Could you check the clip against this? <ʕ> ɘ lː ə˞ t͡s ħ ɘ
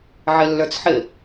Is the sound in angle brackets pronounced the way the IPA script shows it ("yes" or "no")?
yes